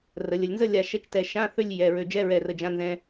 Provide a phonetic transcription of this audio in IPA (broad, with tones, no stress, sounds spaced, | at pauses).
r ə˩˧ lʲ ə˩˧ lʲ n z ə˥˧ lʲ a˧˩ ʃ ɛ˧˥˧ t͡ʃ t ɛ˧˩ ʃ ã˧˥˧ θ ø˥˧ lʲ j ɛ˩˧˩ ɹ ø˧˩ d͡ʒ ɛ˧˥˧ ɹ ɛ˧˩ r ə˧˩ d͡ʒ ã˧˥˧ n z ɛ̃˧